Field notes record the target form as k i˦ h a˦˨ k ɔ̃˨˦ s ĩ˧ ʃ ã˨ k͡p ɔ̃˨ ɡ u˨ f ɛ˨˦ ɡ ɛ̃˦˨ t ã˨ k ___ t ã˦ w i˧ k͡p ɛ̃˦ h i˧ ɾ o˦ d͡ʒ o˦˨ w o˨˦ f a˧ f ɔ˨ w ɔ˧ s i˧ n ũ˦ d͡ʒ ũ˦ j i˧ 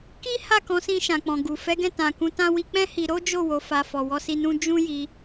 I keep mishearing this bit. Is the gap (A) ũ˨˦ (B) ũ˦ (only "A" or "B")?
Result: A